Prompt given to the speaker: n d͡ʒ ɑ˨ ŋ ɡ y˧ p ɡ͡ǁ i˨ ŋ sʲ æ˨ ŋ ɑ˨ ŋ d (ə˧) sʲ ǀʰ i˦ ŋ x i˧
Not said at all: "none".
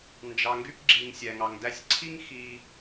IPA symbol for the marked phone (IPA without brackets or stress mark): æ˧